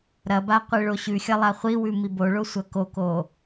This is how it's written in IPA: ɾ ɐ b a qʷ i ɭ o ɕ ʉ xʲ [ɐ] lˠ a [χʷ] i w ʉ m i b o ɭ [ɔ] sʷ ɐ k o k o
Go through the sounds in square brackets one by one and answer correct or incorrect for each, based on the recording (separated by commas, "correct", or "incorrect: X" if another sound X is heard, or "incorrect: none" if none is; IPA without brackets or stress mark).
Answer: correct, correct, incorrect: o